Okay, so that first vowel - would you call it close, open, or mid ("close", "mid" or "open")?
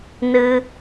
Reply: close